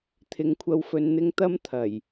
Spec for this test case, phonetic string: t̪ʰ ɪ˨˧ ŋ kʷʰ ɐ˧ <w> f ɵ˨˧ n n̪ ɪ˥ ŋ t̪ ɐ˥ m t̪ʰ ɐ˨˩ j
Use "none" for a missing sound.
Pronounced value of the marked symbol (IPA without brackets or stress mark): w